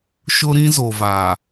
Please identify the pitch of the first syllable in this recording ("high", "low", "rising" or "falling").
high